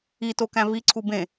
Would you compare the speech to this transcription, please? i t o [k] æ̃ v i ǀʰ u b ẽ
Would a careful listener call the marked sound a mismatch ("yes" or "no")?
no